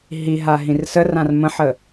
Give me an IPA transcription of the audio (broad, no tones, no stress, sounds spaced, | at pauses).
ɦ i ɦ a ɦ ĩ r s ə r ã r m ə̃ ħ ə